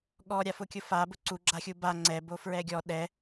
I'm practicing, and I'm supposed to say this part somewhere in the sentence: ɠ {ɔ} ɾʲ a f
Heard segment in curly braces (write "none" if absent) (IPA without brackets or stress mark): ɔ